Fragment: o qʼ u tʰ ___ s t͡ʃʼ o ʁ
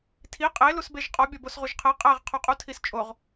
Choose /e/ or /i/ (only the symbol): i